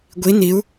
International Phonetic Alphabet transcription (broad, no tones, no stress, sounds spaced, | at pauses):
ɡʷ i n i u̯